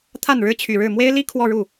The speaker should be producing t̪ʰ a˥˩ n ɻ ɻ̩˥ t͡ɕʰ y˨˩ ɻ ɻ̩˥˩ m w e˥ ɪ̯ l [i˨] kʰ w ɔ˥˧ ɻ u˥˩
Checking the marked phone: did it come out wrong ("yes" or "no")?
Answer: yes